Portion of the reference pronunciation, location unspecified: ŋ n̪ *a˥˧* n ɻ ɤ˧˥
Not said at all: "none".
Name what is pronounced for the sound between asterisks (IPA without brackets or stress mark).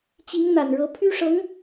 a˨˩